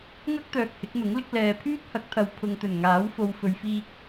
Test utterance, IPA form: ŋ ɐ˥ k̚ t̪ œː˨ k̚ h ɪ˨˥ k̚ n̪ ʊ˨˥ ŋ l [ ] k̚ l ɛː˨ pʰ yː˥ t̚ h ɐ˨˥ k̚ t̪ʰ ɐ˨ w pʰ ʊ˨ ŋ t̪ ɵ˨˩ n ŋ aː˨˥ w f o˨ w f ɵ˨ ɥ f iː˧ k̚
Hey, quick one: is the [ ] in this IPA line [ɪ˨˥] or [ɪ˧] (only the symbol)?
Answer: ɪ˨˥